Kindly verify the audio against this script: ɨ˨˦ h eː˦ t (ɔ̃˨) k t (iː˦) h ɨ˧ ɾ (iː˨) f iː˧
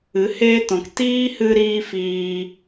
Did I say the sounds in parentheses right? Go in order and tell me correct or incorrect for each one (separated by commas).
correct, correct, incorrect